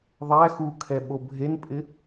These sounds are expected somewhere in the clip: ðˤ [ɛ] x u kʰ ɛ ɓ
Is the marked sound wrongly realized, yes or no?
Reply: yes